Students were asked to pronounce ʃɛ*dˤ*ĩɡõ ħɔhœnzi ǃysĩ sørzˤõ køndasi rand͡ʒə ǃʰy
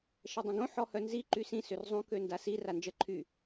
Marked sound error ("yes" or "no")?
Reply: no